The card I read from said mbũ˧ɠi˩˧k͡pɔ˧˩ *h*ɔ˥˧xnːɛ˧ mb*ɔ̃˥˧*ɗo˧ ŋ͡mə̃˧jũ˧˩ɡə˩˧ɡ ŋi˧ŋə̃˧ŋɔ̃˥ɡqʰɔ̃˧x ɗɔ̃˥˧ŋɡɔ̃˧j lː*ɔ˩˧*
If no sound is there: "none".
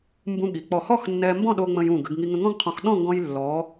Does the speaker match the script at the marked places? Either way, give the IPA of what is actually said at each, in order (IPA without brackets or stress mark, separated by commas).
h, ɔ̃˥˧, ɔ˩˧